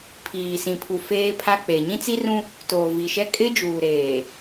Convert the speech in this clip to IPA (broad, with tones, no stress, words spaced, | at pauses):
pʰiː˨sĩ˨ pʰu˨feː˦pʰa˦k͡pe˨ ɲĩ˦t͡si˦rũ˦ | toː˨vi˨ʃɛ˦ kʼɪ˦d͡ʒuː˨ɾeː˨